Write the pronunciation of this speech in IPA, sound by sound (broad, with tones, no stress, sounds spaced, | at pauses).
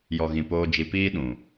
j ɔ˨ ɣ ĩ˨ p oː˧ d͡ʒ i˧ p iː˦ ɗ ũ˨